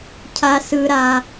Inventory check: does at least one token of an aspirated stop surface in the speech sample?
yes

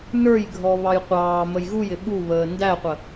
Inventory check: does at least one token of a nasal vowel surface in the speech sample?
no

